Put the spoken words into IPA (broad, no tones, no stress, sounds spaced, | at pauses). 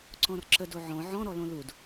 ǀ ɔ̃ r ǁ ə d o ʕ ɔ̃ ʕ ɔ̃ ɾ ɔ l õ l u d